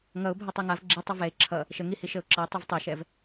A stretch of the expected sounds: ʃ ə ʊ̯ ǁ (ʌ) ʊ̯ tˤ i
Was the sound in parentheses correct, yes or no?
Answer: yes